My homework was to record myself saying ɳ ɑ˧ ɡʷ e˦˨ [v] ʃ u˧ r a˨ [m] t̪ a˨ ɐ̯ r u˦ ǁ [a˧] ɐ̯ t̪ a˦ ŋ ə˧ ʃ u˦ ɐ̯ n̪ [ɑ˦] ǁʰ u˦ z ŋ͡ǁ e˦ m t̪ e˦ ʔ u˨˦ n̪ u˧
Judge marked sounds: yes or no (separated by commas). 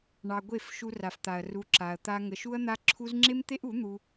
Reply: no, no, yes, no